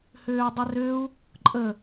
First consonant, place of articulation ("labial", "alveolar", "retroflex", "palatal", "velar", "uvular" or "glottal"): glottal